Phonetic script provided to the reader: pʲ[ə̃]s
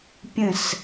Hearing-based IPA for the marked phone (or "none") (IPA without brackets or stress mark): ə̃